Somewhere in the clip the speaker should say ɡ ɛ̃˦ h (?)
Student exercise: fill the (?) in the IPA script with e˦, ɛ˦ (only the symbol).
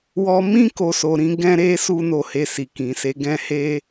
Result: e˦